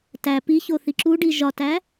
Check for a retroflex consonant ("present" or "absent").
present